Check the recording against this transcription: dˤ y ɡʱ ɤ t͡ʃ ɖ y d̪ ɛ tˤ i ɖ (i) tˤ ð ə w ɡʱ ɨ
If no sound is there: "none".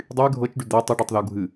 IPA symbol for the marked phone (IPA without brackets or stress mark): y